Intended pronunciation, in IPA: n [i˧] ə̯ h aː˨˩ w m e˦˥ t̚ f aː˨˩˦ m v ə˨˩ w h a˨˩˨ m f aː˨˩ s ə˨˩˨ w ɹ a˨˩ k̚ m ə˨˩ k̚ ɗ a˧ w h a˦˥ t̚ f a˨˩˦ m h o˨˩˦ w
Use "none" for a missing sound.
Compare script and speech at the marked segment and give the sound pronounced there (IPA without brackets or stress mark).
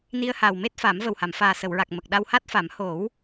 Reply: i˧